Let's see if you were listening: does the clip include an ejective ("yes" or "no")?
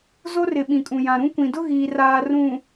yes